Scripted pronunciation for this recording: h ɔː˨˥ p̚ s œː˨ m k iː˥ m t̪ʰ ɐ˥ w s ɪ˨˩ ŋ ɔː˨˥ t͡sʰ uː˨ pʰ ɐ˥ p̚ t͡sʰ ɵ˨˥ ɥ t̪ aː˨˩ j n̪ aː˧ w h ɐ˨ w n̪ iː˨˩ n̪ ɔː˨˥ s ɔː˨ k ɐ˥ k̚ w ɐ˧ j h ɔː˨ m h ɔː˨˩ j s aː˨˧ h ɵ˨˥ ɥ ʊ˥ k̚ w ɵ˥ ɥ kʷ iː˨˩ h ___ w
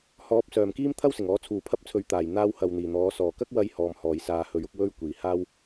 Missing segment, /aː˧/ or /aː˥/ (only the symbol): aː˥